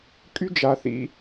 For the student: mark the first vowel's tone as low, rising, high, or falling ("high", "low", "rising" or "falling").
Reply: high